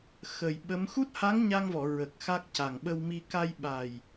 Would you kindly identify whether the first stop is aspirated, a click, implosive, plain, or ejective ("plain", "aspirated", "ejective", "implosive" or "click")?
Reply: implosive